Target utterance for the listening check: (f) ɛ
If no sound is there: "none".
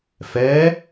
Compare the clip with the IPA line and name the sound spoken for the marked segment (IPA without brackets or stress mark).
f